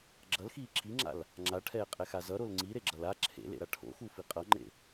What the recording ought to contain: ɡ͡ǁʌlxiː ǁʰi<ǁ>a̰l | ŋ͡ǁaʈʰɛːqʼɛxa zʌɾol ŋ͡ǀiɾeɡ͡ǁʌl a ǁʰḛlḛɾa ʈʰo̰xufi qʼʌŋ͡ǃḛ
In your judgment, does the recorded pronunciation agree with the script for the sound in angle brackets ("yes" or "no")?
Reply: no